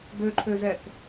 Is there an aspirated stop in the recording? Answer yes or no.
yes